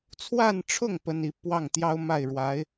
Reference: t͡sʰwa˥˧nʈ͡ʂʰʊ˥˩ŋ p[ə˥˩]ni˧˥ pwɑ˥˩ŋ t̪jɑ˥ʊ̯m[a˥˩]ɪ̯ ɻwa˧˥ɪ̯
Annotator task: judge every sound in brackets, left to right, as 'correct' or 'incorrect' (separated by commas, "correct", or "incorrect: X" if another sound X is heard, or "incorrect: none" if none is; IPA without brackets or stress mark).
incorrect: ə˥, correct